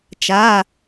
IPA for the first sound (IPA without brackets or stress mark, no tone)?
t͡ʃ